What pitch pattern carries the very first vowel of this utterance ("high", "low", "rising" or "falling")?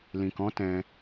low